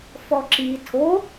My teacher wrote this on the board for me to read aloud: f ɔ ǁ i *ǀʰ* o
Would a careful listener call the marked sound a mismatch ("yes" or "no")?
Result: yes